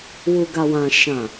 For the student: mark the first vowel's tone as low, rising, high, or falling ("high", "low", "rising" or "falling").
low